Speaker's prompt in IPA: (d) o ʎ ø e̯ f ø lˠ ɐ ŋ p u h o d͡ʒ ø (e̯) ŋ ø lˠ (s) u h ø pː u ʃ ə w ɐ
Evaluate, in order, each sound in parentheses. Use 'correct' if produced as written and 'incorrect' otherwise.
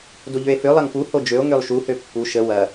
correct, incorrect: o̯, incorrect: ʃ

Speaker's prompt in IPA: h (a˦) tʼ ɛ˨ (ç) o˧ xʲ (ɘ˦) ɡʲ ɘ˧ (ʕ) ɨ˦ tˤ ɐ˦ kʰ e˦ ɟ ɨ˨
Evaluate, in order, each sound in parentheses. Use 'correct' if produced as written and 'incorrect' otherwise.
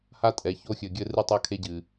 correct, correct, incorrect: ɘ˨, incorrect: r

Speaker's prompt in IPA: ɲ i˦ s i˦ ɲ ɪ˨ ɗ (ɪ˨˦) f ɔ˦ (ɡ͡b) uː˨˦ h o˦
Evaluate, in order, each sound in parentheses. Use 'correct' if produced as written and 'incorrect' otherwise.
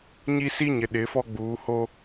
correct, correct

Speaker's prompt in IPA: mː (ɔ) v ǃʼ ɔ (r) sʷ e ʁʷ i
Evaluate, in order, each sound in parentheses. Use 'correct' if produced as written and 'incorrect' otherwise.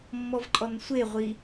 correct, incorrect: n

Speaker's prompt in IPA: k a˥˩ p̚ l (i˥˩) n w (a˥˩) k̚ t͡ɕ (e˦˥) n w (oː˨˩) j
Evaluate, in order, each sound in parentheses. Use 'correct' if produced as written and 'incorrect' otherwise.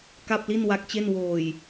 correct, incorrect: a˦˥, incorrect: e˥˩, correct

